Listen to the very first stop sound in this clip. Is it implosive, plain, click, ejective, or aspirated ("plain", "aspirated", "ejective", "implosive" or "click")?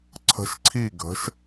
click